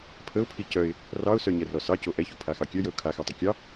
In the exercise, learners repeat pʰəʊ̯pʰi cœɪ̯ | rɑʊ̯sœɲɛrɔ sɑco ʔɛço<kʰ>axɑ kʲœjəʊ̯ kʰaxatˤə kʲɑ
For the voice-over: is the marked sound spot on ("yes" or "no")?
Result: no